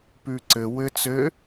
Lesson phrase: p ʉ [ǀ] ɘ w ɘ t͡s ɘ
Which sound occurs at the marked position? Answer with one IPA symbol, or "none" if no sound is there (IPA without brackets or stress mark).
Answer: ǀ